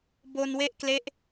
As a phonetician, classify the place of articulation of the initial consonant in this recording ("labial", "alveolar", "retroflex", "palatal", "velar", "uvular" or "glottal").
labial